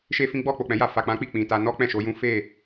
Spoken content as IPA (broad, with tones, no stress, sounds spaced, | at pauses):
ʃ e˦ f ĩ˦ ɡ͡b ɔ˦˨ k͡p o˨ k͡p ɛ̃˨˦ j a˧ f a˨ k͡p ã˨˦ k͡p i˦˨ k͡p ĩ˨ t a˧ n ɔ˦ k͡p ɛ̃˦˨ ʃ o˧ j ũ˦ f e˦˨